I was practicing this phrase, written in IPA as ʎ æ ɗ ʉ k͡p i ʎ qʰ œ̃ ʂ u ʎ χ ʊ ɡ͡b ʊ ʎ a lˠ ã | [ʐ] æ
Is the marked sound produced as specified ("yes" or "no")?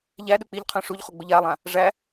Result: yes